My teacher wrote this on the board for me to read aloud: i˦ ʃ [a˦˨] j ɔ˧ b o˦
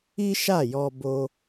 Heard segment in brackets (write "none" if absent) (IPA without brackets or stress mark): a˦˨